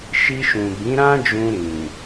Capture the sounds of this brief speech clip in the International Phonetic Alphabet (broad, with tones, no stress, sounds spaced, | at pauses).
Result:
ʃ i˧ ʃ ũ˨ b ĩ˨˦ ɾ ã˦ d͡ʒ ũ˧ ɾ ĩ˨